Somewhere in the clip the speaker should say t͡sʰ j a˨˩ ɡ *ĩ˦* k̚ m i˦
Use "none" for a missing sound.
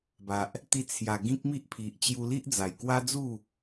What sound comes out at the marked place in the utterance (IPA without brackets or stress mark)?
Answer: ĩ˦